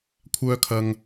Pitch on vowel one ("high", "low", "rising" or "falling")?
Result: high